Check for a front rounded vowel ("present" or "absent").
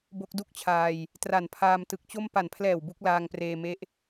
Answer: absent